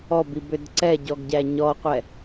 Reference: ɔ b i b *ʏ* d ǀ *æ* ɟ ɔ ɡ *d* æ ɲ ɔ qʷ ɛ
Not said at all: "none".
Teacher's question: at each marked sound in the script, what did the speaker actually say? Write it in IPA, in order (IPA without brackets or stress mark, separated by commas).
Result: ʏ, ɛ, ɟ